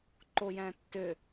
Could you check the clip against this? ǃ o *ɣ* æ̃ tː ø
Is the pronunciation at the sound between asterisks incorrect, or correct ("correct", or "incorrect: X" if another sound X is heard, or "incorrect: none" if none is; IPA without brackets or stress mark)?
incorrect: j